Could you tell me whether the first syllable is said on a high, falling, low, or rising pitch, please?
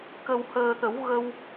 low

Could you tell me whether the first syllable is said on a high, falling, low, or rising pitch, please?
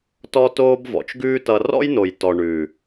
high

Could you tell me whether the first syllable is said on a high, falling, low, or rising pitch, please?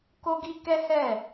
high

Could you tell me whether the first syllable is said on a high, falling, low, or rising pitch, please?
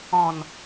low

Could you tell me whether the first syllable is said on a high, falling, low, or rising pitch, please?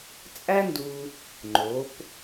high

